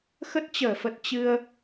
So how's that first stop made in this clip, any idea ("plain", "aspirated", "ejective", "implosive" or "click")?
plain